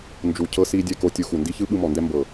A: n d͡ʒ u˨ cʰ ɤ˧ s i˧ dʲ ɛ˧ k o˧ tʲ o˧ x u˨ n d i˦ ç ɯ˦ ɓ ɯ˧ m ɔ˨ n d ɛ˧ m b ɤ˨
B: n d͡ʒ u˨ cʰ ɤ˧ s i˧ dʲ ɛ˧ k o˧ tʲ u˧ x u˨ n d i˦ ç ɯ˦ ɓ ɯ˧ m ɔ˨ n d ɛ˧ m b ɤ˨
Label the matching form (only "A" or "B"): B